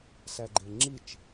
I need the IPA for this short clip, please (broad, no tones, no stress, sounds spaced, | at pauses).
s æ ɡ͡ǃ e ŋ͡ǁ i t͡ʃ